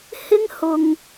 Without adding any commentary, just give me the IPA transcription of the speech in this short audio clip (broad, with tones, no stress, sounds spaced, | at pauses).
h ɪ˥ ŋ h ʊ˧ ŋ